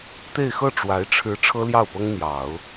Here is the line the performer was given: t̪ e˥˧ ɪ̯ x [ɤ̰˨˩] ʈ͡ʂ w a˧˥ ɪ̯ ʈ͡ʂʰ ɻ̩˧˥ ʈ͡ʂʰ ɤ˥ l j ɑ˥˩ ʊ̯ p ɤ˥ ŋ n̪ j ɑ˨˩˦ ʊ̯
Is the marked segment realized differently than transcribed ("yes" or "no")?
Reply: yes